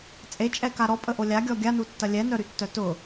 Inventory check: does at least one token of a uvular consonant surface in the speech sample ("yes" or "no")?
no